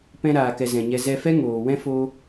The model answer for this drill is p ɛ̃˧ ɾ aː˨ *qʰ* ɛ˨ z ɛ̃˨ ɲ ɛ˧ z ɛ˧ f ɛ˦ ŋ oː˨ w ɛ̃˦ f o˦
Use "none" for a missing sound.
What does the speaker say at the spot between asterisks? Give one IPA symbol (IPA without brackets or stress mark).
k